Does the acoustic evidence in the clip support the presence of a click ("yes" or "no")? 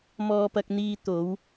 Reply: no